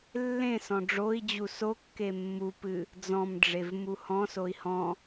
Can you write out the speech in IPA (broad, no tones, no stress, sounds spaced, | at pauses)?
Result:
lː ẽ s ɔ̃ ɖ͡ʐ o i̯ d͡ʑ u s o kː e mː u p ɨ | d͡z ɔ̃ m ɖ͡ʐ e v m u h ɔ̃ s o i̯ h ɔ̃